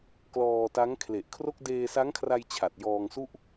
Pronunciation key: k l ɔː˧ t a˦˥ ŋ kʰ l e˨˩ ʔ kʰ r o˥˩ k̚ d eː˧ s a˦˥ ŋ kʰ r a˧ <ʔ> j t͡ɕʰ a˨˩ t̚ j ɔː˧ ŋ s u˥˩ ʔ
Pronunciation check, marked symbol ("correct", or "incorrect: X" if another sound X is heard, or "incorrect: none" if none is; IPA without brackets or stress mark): incorrect: none